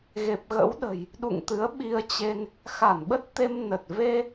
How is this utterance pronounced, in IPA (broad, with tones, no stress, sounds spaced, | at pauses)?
ɣ e˨˩ p̚ ɣ ə̰˧˥ w ɗ ə̤˨˩ j | ɗ ṵ˧˨ ŋ t̪ ɨ˨˦ ə̯ ɓ i˧ ə̯ t͡ɕ e˧ n | x a˧˩ n ɓ ə˦˥ t̚ t̪ e˧ m n ə˨˩ t̚ v e˧